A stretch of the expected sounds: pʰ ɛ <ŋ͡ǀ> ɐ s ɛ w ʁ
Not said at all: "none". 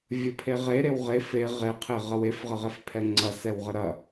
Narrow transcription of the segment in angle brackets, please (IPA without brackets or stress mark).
ŋ͡ǀ